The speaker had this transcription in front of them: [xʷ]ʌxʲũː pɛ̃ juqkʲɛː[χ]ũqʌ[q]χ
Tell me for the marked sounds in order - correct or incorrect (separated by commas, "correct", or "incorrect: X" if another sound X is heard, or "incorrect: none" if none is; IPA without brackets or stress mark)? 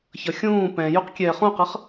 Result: incorrect: ç, correct, incorrect: none